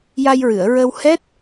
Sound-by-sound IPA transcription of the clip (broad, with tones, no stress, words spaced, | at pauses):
ja˧jɹɨ˨˩˨ə̯ɹə˧whɛ˦˥t̚